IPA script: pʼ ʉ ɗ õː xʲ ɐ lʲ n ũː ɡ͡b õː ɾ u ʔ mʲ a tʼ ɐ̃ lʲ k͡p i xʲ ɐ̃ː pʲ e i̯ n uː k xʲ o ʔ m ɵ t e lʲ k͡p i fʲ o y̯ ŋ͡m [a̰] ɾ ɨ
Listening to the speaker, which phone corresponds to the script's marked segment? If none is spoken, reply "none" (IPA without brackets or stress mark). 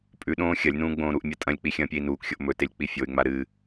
a